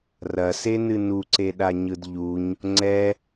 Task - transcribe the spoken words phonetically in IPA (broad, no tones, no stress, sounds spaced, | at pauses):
r ɐ s e n ɨ n u ǀ e ɗ a ɲ ɯ d ʎ u ɲ | ŋ͡ǀ ɛ